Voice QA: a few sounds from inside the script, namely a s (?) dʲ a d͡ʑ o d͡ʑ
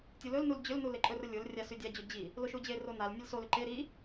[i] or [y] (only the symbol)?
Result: y